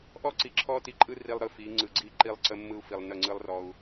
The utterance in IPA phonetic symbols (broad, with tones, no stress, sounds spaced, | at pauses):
ʔ ɔ˦ ǀ i˨ ǁʰ ɔ˦ t i˨ ǃʼ ɯ˦ r i˨ lˠ ɾ ɯ˨ f i˨˦ ŋ͡ǀ ɯ˨ ɡ͡ǀ i˦ ǃ i˦ lˠ ǀ ə˦ mː ɯ˦ u̯ f i˨ lˠ n ə˦˨ ŋ͡ǀ ɯ˦ lˠ r ɔ˦ u̯